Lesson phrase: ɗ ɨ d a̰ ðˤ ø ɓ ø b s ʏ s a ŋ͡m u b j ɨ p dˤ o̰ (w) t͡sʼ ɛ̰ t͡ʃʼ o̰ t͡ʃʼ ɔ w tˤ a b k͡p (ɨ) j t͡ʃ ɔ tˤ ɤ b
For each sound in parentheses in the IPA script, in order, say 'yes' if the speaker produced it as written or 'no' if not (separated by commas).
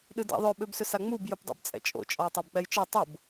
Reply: no, no